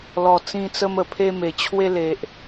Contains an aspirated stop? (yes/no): yes